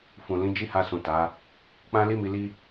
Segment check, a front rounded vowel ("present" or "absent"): absent